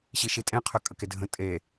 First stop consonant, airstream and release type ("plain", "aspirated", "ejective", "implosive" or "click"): ejective